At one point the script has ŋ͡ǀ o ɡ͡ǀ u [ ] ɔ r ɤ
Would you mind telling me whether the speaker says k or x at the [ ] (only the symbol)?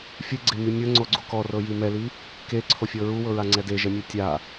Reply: k